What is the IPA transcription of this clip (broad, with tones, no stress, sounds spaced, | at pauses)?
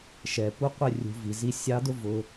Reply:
ʃ ɛ˨ p u˦ qʷ ɪ˦ rʲ ṳ˧ v i˨ z i˧ sʲ ɑ˧ d ʊ˦ v ʊ˧